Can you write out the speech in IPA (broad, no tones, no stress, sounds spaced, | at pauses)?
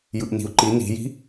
j ɯ ʔ n i̤ u̯ ǃ i n i̤ j i̤